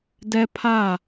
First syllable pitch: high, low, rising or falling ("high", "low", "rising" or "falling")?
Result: high